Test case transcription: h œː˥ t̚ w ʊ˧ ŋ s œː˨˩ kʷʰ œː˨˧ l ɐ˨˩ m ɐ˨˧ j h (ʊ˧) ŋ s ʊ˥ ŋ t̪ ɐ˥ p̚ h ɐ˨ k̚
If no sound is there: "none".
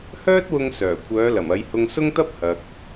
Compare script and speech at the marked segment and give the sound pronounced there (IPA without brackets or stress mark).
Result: ʊ˧